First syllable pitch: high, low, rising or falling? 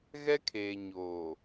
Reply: high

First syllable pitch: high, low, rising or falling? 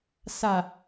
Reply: low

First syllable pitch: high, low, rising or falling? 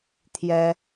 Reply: high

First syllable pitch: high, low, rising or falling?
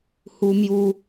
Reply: high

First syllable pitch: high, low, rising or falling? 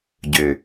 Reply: low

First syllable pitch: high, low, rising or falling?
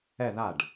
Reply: falling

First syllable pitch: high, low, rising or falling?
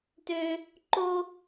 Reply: high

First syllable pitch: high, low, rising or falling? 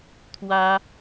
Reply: high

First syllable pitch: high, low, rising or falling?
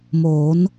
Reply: rising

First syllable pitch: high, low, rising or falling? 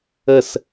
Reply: falling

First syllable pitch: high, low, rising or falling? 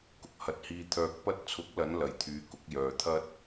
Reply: rising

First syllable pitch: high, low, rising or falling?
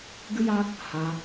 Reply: high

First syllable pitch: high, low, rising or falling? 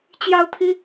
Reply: high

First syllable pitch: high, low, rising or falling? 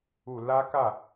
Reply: low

